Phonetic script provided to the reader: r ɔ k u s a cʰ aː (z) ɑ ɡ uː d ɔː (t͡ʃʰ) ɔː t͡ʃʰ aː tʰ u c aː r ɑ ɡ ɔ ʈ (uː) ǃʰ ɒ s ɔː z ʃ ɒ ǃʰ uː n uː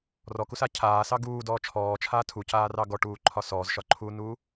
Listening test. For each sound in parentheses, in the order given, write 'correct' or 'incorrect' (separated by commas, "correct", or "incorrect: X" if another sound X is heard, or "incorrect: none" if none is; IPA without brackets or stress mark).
incorrect: s, correct, correct